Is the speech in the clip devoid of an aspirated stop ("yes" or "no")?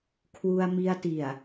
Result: no